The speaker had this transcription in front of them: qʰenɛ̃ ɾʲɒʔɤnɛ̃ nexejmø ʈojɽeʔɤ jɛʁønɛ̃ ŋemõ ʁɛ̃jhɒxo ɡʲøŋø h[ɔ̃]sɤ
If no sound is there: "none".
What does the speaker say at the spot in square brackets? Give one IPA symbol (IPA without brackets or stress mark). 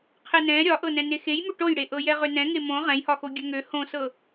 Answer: õ